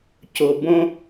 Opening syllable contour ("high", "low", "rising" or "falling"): low